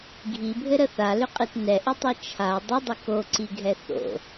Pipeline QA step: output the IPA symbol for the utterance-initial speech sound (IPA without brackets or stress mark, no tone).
ɡʱ